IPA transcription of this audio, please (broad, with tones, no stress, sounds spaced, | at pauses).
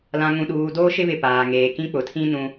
l ã˨ ŋ ũ˨ ɗ uː˨ d oː˦ ʃ ɪ˦ β ɪ˨ p aː˨ ŋ eː˨ k ĩ˦ k͡p ʊ˨ tʰ ĩ˦ n ũ˨